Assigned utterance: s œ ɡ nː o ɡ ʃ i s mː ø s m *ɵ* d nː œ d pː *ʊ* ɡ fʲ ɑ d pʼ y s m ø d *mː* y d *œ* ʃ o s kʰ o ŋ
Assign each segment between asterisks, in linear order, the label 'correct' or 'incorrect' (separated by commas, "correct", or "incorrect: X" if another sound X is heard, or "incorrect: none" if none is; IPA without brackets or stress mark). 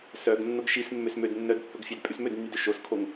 incorrect: ø, incorrect: ɵ, incorrect: nː, incorrect: ø